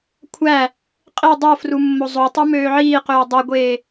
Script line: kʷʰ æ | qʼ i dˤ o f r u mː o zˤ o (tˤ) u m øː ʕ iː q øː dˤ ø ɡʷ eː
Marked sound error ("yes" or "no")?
no